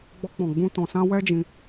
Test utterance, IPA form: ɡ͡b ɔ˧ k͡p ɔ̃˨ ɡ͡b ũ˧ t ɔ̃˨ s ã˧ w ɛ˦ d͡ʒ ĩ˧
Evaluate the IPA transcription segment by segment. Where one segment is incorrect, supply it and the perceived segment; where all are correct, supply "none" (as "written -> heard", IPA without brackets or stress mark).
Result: none